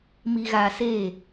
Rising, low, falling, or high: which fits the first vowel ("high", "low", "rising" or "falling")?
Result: low